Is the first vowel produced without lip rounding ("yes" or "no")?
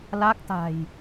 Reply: yes